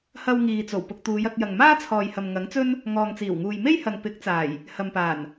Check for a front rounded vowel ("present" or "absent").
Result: absent